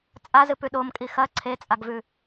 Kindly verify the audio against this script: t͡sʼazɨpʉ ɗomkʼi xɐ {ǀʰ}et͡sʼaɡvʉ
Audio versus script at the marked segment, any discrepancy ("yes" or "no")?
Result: no